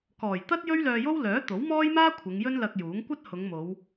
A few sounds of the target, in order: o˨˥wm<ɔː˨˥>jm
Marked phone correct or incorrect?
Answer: incorrect: ɔː˥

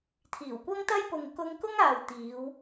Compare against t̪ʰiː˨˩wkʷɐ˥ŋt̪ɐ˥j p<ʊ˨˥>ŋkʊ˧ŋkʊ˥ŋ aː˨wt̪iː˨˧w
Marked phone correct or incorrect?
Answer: incorrect: ʊ˨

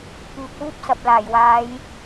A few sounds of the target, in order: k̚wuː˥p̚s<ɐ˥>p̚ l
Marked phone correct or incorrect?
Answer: incorrect: ɐ˨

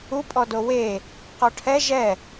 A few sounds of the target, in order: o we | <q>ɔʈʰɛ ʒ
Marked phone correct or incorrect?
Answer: correct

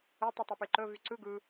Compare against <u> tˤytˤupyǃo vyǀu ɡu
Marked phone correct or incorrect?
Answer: incorrect: o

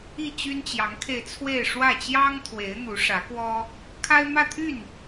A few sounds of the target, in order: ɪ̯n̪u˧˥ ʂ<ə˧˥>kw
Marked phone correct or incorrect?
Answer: incorrect: ä˧˥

